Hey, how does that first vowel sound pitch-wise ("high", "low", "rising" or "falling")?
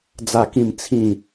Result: falling